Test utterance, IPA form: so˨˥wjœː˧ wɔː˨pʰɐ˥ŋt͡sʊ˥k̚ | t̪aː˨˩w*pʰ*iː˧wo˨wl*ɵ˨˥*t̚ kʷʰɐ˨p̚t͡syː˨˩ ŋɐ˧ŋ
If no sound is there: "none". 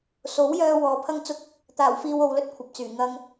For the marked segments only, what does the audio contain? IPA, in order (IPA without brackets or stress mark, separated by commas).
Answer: f, ɵ˥